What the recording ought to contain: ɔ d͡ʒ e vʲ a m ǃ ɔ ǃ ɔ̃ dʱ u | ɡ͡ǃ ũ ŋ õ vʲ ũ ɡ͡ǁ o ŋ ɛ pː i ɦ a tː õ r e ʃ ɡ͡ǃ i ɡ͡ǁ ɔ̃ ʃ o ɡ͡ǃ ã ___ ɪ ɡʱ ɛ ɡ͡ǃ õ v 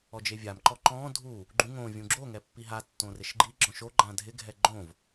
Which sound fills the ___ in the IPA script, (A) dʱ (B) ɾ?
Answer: A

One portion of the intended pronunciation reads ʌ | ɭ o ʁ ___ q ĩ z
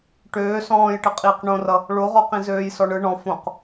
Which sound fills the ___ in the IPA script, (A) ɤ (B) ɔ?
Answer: B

